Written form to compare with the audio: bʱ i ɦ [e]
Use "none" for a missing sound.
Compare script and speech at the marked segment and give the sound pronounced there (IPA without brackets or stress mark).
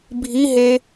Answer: e